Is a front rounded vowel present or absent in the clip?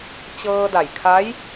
absent